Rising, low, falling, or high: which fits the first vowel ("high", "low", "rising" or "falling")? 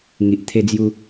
low